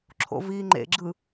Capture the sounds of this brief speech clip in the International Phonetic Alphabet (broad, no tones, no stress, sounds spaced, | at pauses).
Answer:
ǁʰ o̰ v iː ŋ͡ǃ ḛ ɡ͡ǁ ɯ